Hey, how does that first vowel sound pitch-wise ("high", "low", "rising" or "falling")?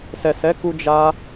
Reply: low